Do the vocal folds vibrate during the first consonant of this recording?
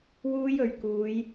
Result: yes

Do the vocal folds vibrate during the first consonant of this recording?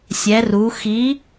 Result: no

